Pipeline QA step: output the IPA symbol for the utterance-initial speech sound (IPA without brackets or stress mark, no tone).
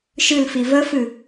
ʃ